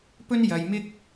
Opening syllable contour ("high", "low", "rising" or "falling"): high